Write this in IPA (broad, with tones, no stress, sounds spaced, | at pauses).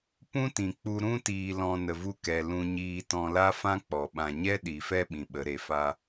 p ũ˦ t ĩ˨ k͡p u˧ ɾ ũ˧ t iː˨ l ɔ̃˨ n ə˨ v u˧ k ɛ˨ l ũ˦ ɲ iː˦ t ɔ̃˧ l a˦ f ã˦ k͡p ɔ˨ ɓ ã˨ ɲ ɛ˦ ɗ i˨ f ɛ˦ ɓ ĩ˨ ɓ ə˨˦ ɾ e˨ f a˦